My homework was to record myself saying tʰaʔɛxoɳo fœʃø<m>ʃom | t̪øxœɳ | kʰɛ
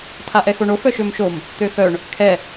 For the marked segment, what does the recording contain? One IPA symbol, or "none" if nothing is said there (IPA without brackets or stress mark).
m